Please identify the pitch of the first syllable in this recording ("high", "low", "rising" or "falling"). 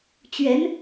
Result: rising